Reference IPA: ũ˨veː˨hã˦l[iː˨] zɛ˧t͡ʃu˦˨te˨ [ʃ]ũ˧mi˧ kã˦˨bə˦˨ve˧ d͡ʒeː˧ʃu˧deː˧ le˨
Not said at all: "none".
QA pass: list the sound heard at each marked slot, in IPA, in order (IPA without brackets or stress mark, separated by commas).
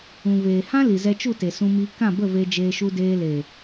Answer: i˨, s